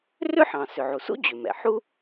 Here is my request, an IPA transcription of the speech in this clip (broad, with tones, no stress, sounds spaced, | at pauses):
r ʏ˥ ħ ɑ̃˩ s ʏ˩ ʕ u˩ s ṵ˥ d͡ʑ ʏ˩ m ɛ̰˩ ħ u˥